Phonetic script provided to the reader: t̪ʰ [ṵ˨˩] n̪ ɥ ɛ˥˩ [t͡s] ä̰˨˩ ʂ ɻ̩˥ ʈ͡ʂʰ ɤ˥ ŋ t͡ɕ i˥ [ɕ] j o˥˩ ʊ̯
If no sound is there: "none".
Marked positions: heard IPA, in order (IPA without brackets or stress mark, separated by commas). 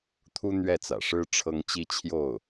u˥, t͡s, t͡ɕʰ